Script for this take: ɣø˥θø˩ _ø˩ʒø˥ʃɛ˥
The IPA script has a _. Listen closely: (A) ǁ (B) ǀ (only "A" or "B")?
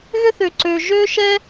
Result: B